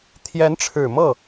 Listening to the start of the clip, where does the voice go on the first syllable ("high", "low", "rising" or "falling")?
rising